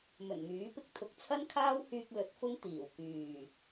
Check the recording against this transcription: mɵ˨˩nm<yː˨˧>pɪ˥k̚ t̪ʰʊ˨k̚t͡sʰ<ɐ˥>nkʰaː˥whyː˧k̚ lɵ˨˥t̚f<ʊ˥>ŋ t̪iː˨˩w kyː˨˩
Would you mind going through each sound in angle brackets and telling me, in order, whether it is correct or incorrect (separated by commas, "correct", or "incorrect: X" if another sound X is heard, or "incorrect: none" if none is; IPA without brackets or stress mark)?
incorrect: yː˨˥, correct, correct